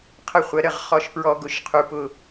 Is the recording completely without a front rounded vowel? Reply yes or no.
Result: yes